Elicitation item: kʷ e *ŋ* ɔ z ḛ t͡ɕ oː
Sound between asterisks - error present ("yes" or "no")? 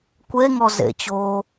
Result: no